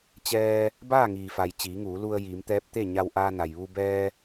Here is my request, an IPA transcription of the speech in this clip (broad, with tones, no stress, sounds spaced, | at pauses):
t͡ɕ ɛː˧ | b aː˥˨ ŋ iː˩ f a˩ j t͡ɕ iː˩˧ ŋ uː˩˧ l u˧ ə̯ j iː˩˧ m t̪ ɛː˧˥ p̚ t̪ e˥˨ ɲ a˧ w ʔ aː˧ n a˩ j ʋ u˧ b ɛː˧